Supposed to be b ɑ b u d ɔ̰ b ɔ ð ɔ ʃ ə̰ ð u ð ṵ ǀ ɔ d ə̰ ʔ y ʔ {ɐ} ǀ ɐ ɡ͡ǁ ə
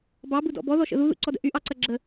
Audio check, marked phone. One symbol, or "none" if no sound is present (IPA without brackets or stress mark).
ɑ